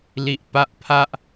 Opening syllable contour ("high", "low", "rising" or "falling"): high